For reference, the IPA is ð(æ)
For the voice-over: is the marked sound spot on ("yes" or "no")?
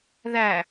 yes